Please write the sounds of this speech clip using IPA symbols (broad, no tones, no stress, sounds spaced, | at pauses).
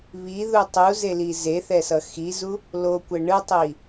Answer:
β i ð u tˤ u z e l i z e θ ɛ s ʌ x i z u | l o kʷ ɛ ɳ ɯ tˤ i